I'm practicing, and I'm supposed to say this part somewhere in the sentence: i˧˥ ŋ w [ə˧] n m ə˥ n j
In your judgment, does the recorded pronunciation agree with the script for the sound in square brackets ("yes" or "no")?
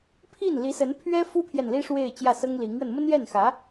yes